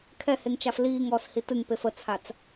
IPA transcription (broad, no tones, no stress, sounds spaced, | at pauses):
kʰ ɛ h e ŋ t͡ʃ a f l iː ŋ ɔː s h i t ɨ ŋ p e f ə t͡sʰ a t͡s